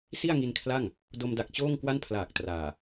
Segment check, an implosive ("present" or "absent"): absent